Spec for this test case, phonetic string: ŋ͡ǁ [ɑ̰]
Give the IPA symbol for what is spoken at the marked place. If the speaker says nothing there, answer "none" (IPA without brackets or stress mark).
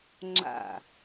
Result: a̰